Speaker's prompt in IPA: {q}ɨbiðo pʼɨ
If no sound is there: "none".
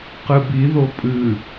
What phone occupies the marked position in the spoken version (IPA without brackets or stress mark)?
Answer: q